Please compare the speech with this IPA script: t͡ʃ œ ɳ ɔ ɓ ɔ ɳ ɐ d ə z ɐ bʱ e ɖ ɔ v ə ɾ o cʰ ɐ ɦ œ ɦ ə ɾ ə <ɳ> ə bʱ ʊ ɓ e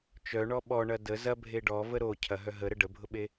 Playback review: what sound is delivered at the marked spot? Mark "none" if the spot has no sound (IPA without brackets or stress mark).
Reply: ɖ